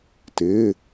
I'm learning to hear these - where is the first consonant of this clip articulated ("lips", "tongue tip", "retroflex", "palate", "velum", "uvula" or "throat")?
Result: tongue tip